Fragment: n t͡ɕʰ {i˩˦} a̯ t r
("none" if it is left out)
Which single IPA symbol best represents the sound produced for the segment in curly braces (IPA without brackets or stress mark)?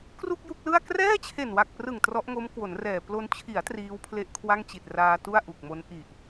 i˩˦